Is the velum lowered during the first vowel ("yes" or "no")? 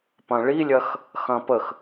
yes